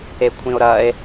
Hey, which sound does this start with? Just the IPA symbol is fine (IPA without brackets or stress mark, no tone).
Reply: e